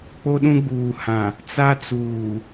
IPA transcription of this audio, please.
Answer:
k͡p o˦ ɗ ũ˦ ɡ͡b uː˨ h ã˨ | t͡s a˦ t͡s uː˨

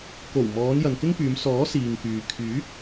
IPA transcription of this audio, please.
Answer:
k o˨˩ w m ɔː˨˧ n j ɐ˨ n k ɪ˥ ŋ p yː˨˧ m s ɔː˨˥ s iː˨ ŋ k yː˨ kʰ yː˨˥ k̚

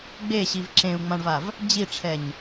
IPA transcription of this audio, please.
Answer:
ɡ͡b e ɕ i v ǁ ẽ u̯ ŋ͡m ã ɳ v a v | d͡ʑ i ʈ͡ʂʰ ɛ ɲ

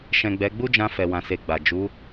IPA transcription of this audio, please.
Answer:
ʃ ɛ̃˨ ɡ͡b ɛ˨˦ ɡ͡b u˦ d͡ʒ ã˧ f ɛ˨ w ã˨ s e˨ ɡ͡b a˨ d͡ʒ u˨˦

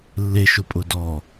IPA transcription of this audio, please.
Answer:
lː e ʃ ʊ pʼ ʊ d ɔ

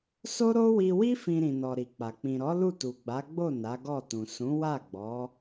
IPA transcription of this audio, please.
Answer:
s o˦ ɾ o˦ w i˧ w i˦ f ĩ˧ ɾ ĩ˨ n ɔ˨ ɾ i˨ k͡p a˨ k͡p ĩ˨ ɾ ɔ˨˦ l u˦˨ t u˨ ɡ͡b a˨˦ ɡ͡b o˦˨ n a˨˦ ɡ ɔ˦˨ t ũ˨ s ũ˨˦ w a˦˨ ɡ͡b ɔ˨˦

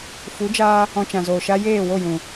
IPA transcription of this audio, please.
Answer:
f u˨˦ d͡ʒ aː˧ | ɔ̃˧ t͡ʃ ã˨ z oː˨ ʃ a˧ j eː˦˨ w o˦˨ j ũ˨

